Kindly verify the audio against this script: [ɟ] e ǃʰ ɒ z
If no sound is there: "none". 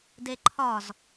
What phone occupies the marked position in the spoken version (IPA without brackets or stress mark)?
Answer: d